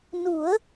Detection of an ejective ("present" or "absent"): absent